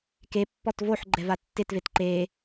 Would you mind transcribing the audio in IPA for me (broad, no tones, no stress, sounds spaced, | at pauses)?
k e pː ɔ t v o ħ ɡ͡ǃ ɛ v a tː ɪ t v e t ǃ e